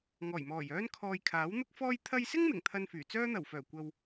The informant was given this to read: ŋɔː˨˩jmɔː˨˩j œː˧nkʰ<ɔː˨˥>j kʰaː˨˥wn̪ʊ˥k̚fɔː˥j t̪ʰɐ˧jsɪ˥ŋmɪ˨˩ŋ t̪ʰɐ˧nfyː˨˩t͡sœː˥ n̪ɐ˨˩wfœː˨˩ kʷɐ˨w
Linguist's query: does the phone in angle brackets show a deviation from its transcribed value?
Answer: yes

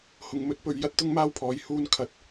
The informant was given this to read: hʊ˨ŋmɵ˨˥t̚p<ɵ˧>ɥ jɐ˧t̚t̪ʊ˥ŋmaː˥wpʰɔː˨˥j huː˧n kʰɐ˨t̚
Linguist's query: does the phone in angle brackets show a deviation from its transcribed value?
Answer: yes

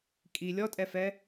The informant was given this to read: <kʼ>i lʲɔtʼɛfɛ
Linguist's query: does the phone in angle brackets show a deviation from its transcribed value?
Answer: no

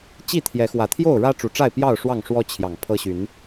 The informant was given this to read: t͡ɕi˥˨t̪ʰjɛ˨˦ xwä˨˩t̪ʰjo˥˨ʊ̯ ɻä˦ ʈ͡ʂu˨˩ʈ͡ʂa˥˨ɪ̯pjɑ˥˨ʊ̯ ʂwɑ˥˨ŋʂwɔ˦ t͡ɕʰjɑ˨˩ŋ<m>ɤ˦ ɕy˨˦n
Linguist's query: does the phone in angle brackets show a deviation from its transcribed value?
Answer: yes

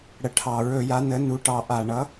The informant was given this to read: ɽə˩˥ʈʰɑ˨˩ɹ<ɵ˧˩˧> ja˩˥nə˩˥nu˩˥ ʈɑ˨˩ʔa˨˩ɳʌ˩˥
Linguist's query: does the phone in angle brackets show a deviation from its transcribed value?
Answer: no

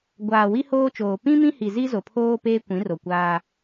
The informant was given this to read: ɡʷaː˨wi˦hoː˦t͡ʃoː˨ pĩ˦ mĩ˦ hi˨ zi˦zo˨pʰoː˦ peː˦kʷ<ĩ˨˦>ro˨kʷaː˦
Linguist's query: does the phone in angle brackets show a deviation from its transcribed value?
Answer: no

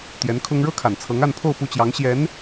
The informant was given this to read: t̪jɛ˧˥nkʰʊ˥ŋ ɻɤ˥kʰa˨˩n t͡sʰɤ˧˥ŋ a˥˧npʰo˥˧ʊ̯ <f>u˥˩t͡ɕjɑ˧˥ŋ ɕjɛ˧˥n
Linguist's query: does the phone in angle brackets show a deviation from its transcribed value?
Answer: yes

